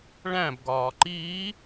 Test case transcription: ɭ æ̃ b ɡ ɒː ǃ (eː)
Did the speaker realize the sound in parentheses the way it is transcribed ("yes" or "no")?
no